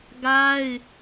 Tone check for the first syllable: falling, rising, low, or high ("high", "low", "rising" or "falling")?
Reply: high